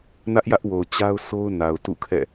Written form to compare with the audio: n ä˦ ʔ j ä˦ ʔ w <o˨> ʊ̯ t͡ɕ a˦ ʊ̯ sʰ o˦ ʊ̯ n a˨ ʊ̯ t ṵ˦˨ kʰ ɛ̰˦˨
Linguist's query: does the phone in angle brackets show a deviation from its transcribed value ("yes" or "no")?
no